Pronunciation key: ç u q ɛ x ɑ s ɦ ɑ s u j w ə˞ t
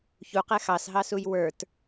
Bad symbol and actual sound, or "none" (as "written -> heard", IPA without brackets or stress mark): none